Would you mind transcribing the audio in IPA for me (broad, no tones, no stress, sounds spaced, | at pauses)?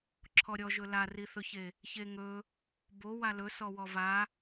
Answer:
ǁʰ ɔ ɾʲ ɔ ʒ ɵ l a r i θ ɵ ç e | ç e ŋ ɵ | b o w a l ɵ s ɔ w ɔ v a